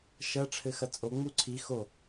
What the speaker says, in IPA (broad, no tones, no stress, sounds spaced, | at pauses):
ʃ ɐ ʈ͡ʂʰ ɘ x ɐ t͡sʼ o ŋ͡m u ǀʰ i x o